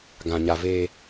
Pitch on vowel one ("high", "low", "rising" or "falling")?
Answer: low